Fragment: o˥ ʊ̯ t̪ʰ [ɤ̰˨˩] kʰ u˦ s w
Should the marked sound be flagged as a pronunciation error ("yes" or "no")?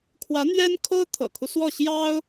no